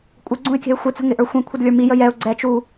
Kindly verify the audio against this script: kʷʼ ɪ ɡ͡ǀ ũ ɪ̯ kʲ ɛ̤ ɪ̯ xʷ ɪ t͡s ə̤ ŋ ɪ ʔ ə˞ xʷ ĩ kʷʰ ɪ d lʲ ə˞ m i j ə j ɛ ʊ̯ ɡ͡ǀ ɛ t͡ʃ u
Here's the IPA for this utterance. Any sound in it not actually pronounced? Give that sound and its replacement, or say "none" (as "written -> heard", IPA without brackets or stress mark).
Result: none